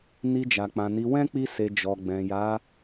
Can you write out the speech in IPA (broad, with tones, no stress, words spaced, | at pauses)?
ni˧d͡ʒa˨k͡pã˨ni˨˦ wɛ̃˦k͡pi˧se˨ d͡ʒɔ˨ɡ͡bɛ̃˨ja˨˦